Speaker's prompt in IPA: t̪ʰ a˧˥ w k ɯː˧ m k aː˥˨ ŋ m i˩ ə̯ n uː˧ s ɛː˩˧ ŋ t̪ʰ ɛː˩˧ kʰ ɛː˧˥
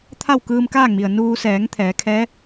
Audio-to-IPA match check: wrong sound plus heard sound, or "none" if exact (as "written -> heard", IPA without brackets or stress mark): a˧˥ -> a˥˨